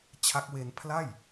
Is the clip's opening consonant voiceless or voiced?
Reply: voiceless